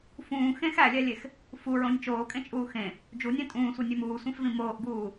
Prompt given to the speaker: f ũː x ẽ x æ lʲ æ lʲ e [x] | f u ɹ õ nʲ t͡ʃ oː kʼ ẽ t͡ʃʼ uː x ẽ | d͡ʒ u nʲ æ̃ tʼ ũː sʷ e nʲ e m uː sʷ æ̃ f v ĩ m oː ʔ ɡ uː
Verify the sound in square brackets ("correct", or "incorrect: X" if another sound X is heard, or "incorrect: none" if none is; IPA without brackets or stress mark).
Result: correct